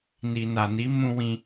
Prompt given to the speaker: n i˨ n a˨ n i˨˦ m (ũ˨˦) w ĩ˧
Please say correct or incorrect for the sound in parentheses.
incorrect